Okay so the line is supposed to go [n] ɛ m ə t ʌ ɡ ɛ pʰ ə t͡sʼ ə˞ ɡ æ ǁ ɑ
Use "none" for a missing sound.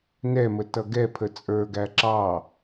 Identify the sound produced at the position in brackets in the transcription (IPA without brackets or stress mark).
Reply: n